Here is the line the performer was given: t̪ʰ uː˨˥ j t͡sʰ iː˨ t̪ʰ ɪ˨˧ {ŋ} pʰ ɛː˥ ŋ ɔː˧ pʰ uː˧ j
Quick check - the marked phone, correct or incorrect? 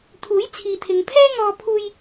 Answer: correct